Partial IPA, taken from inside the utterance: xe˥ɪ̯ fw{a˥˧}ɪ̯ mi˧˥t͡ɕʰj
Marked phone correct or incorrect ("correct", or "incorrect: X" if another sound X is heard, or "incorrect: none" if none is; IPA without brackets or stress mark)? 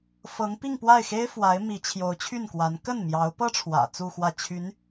incorrect: a˧˥